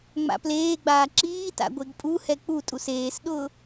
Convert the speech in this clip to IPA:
ŋ͡m a̰ p l eː ɡ͡b aː ǁ iː t a̰ ɡʷ e ɡ pʼ u h ɛ k͡p u tʼ u s eː s ɗ ʊː

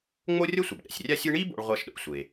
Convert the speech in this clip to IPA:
ŋ͡m o˥ rʲ ʌ˥ sʷ ʌ˩ b ɗ ɛ̰˩ sʲ rʲ a˥ sʲ ɯ˥ ɳ i˥ b o̰˥ ɭ ʁʷ a˥ ʃ ɗ o̰˥ sʷ e˩

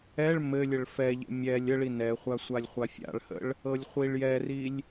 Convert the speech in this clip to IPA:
ɛ ɭ m ɘ lʲ ə ɭ f ɛ ʎ ə̰ mʲ ɛ lʲ ə ɭ i n ɛ χʷ a sʷ a lʲ χʷ a fʲ a̰ ɭ h ə̰ ɭ | ɤ lʲ χʷ i ɭ j ɛ r i lʲ

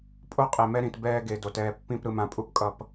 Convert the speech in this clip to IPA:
pʼ o˦ qʼ e˨ m ɛ˦ ɾ ĩ˨ t b ɛː˦ ɡ e˨ d o˨ t ɛː˨ pː ĩ˦˨ p ɾ ɯ˨ m ã˨ pʼ u˨ p kʼ ʌ˨ p

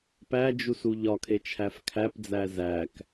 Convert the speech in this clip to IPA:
p æ d͡ʒ u s u ʎ ɒ kʰ e t͡ʃʰ æ f kʰ æ p d͡z æ z æ k

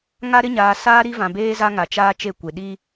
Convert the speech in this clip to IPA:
ŋ a˦ ɾ ɪ˦ ɲ aː˨ s aː˦ ɾ i˦ v ã˨ b eː˦ z a˦ ŋ a˨ t͡ʃ aː˦ t͡ʃ e˦ kʷ e˨ ɗ i˦

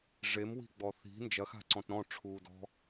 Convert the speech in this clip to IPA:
ʐ e m w i̤ ɡ͡b ɔ θ i̤ n d͡ʒ ɐ x a̤ ǀ ɔ̃ t ɾ ɔ̃ ʈ͡ʂʰ uː d ɔ̤

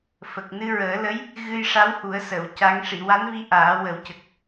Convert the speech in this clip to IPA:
f ə˨˩ k̚ n ɨ˧ ɹ əː˨˩˦ l ə˧˥ j | ɣ ɨ˧ j ʂ a˧˥ w h u˨˩˦ ə̯ s ə˨˩˨ w c a˧˥ ŋ ʂ i˨˩˨ w a˧˥ n v i˧˥ ʔ aː˨˩˦ w ə˨˩˦ w c ə˨˩ k̚

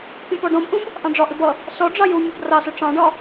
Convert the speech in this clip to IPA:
pʲ ə̃ p ɔ ɖ ɔ̃ b ʔ ũ b | ʔ ɑ̃ ɖ͡ʐ ɒ ʔ ɪ b ʌ | s ɔ ɖ͡ʐ ɑ j u mʲ ɜ b r ɑ s ʊ ʈ͡ʂ ɑ̃ ɖ ɒ

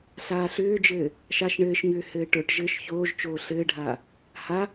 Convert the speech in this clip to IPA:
ɬ aː ɬ ʏː d͡ʒ ɘː | ʃ a ʃ ɳ ɘː ʃ ɲ ʏː h ɘː ʈ ə˞ ʈ ʒ ɘː ʃ ç oː ʒ t͡ʃ oː ɬ ɘː ɖʱ aː | h a

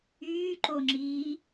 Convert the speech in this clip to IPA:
yː ǃ o ŋ͡ǁ iː

